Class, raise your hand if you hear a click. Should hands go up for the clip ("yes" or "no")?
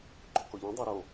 yes